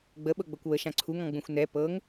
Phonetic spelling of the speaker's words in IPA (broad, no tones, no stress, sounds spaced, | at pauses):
ɡ͡b ə ɓ ɤ ɡ͡b ɤ kʷ w ə ʃ ã ǀʰ u ŋ ɔ̃ ɡ͡b ũ xʷ n ɛ p ɤ ŋ